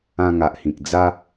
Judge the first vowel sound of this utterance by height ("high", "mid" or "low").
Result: low